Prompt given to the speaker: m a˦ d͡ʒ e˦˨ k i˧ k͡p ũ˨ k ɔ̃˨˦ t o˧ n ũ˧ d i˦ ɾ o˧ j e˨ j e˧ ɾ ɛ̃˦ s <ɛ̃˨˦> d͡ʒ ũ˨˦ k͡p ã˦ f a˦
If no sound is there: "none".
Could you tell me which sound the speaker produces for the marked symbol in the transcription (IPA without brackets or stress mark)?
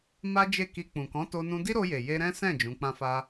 ɛ̃˦˨